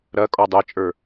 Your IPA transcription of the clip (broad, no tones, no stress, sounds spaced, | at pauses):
ɾ ɐ kʼ ɔ dˤ e t͡ʃʼ ə˞